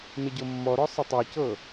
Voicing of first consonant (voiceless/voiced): voiced